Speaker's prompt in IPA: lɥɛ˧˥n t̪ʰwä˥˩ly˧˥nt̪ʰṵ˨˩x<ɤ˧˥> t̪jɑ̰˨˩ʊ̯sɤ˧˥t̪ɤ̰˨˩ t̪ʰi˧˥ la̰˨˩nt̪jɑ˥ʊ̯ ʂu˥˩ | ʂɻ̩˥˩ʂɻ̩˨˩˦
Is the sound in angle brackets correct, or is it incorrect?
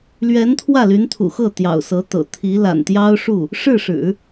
incorrect